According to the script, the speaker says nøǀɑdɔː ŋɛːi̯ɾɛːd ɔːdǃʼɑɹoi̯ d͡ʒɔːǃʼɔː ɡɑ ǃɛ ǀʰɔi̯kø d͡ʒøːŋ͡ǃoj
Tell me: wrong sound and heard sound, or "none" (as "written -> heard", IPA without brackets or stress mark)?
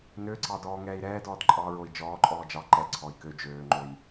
ɡ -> d͡ʒ